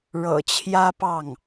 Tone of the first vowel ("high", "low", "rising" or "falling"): low